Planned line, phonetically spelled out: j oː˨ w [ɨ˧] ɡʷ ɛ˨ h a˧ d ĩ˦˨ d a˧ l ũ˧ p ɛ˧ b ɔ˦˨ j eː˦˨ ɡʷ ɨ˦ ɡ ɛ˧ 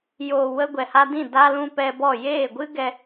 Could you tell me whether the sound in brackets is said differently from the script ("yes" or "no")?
yes